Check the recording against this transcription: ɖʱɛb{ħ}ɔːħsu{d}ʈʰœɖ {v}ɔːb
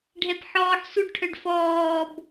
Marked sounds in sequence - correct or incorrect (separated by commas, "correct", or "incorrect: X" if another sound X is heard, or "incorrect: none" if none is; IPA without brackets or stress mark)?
correct, incorrect: ɖ, incorrect: f